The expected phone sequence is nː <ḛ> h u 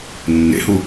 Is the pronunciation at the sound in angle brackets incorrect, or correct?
correct